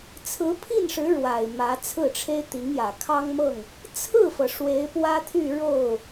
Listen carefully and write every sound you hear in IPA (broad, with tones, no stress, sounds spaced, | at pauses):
t͡sʰ ɹ̩˧˥ pʰ i˥˩ n ʂ ɻ̩˧˥ ɻ w a˨˩ ɪ̯ m ä˧˥ t͡sʰ ɹ̩˥˩ ʈ͡ʂʰ e˥ ɪ̯ t̪ i˧˥ ŋ j ä˨˩ kʰ ɑ˥ ŋ m ɤ˥˩ ŋ | t͡sʰ ɹ̩˥˩ f ɤ˩ ʂ w e˧˥ ɪ̯ p w ä˥ t̪ʰ y˥˧ ɻ o˥˩ ʊ̯